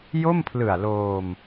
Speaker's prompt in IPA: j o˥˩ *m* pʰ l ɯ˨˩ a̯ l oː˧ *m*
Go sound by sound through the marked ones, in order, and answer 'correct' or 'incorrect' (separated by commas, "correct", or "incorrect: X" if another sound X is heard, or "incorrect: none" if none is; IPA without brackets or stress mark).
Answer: correct, correct